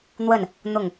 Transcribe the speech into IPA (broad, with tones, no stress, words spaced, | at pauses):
n̪wə˥˩n | n̪ʊ˥˩ŋ